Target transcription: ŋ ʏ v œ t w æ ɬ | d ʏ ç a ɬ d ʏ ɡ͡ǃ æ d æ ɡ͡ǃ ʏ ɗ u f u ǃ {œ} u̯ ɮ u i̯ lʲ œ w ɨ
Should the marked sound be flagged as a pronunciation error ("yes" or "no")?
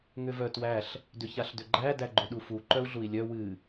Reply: no